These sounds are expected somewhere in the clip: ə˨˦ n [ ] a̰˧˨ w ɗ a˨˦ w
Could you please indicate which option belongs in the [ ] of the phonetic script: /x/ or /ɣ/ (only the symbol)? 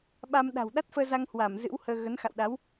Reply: x